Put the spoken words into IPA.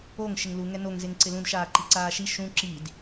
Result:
oŋ ʃɪŋlu ŋɛnoŋ zeŋǀɪlũd ʃaːǃiǀaːʃi ʃũ ǁid

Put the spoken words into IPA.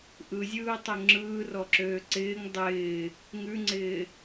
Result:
ʔɯzʲɯːtˤø ŋ͡ǁɯːrɔǁøː ǀɪːŋ dˤɪː | ŋʉŋ͡ǀɪː

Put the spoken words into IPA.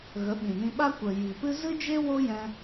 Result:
ɣə˨˦ɓĩ˨nĩ˧ɓa˦ kʷə˨ ji˨pɨ˦ zɨ˦d͡ʒe˦ wo˦jɛ̃˧

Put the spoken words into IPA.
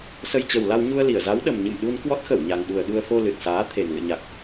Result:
sə˧jt͡ɕə˨˩wla˧w ɲu˧ə̯li˧˩ə̯za˨˦w ɗə˨˩mɲɨ̰˧˨mɗu˧n kwɔ˦˥t̚xə˧˩wɲa˨˩ŋɗu˨˩ə̯ ɗu˧ə̯fo˧ lɨ˨˩t̚saː˨˦t̪ʰe˨˩n lɨ̰˧˨ɲa˨˩k̚

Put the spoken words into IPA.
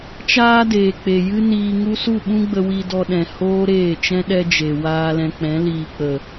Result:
t͡ʃaː˦deː˨k͡pe˨ jɨ˦niː˧ŋu˦ su˦˨ɓũ˦ɡ͡bə˧ wi˧dɔ˧ɗɛ̃˨ hoː˦ɾeː˦˨t͡ʃɛ̃˦ ɗɛ˦d͡ʒe˨ waː˧lɛ̃˧k͡pɛ̃˨˦liː˧ k͡pə˨

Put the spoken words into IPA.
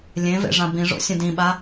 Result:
lʲẽvḛ ʐãbĩʐo̰ sʲə̃dĩɓa

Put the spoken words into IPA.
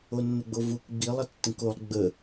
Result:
onːəɡ͡bovuk ɡ͡bilˠ ʌtːə̃kolˠ ɡ͡bə

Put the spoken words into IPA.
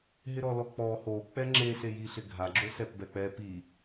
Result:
ɦɪɾɔlɔk͡pɔ ho k͡pɛŋ͡ǁe sejiɬɪɡʱa ɡ͡ǁosɛpbɛk͡pɛ pi

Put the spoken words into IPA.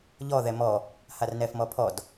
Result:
ʎɔ ðɛmɔ | harnɛfmɔpʰɔd

